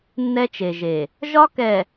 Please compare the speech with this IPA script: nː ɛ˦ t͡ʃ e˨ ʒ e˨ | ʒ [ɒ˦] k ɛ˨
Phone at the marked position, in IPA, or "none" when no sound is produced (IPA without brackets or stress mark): ɒ˦